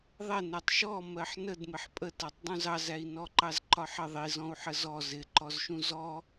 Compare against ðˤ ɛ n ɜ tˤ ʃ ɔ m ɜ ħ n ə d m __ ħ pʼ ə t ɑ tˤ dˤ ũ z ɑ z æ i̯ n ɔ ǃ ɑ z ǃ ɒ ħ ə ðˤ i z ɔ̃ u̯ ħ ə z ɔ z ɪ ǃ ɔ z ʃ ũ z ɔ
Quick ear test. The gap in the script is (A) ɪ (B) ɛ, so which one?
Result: A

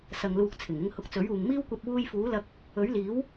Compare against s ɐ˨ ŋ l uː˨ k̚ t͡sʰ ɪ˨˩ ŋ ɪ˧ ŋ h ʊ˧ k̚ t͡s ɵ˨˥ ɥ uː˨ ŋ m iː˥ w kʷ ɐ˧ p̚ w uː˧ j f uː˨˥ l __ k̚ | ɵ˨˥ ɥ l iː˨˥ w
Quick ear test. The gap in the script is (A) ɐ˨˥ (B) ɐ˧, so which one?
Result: B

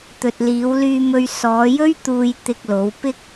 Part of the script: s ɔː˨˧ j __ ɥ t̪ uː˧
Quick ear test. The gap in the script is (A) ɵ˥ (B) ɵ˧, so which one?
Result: A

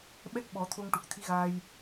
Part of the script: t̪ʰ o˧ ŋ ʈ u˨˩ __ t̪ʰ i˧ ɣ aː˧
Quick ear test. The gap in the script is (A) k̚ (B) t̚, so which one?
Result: A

